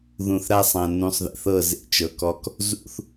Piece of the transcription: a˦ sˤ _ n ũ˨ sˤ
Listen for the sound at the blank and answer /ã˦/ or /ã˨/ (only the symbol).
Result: ã˨